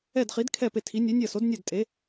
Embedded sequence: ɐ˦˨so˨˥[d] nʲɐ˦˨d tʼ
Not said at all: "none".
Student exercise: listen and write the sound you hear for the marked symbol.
d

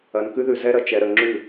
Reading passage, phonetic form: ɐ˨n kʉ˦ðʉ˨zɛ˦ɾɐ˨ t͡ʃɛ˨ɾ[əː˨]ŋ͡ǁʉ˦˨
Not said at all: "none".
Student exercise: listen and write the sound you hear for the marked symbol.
ə˨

